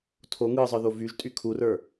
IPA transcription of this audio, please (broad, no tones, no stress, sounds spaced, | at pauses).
tʰ o ŋ ɯ zˤ ə˞ ð o v y ʒ tʼ y kʰ u r ə˞